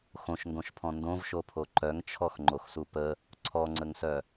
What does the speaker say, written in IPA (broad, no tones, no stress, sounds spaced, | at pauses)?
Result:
x õ ʃ ŋ ɡ õ ʃ pʰ ɔ̃ n d õ v ʃ o pʰ o ǃ œ ŋ t͡ʃʰ ɔ x ŋ͡ǃ o x s u p ə | ǀʰ ɔ ŋ͡ǀ ə ŋ s œ